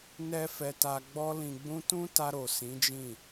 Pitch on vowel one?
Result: high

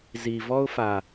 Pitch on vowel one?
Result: low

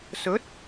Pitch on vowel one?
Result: rising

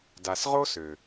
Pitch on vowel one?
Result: low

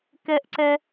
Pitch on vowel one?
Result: high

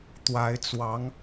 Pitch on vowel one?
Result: rising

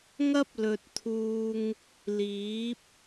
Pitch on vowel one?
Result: high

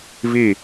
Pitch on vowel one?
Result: falling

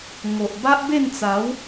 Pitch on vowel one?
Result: low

